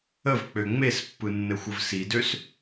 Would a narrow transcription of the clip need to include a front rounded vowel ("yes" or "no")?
yes